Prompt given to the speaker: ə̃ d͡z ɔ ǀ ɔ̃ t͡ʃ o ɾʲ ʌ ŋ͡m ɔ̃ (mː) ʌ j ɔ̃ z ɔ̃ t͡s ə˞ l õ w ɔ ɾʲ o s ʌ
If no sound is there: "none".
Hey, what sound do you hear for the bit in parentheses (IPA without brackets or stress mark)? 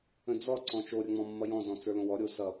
mː